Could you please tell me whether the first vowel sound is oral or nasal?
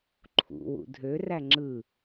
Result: oral